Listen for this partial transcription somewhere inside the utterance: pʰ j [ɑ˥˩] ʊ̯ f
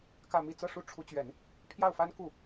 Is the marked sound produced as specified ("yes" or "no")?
yes